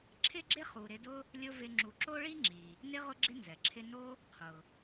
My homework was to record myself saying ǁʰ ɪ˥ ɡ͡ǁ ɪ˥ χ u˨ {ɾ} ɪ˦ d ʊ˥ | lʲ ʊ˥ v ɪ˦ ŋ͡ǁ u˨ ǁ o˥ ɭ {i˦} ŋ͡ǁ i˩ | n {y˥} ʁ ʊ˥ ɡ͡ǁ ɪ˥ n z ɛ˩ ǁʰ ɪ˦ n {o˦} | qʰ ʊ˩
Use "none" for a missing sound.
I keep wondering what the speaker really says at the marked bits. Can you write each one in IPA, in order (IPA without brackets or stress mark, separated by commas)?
ɾ, i˥, ɪ˥, o˥